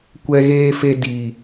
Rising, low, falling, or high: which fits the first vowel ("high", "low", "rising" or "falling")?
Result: high